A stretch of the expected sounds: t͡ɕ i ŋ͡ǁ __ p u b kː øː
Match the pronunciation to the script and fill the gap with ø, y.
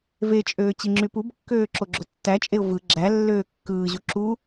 y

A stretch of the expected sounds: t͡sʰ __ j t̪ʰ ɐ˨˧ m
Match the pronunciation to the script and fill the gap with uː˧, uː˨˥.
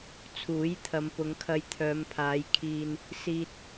uː˨˥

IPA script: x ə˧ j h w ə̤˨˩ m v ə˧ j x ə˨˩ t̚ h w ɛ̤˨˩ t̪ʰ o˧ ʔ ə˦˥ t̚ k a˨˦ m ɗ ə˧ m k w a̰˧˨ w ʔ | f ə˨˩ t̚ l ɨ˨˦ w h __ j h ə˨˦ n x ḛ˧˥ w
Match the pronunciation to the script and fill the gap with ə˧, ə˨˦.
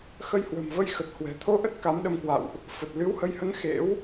ə˨˦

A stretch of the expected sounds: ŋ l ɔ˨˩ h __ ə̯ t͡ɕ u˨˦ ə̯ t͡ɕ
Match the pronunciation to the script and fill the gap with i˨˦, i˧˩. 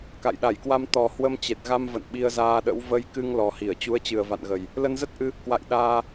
i˧˩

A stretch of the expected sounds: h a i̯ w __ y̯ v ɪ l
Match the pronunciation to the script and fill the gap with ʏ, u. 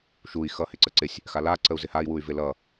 u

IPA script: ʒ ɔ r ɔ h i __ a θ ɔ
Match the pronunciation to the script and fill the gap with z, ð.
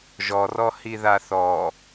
ð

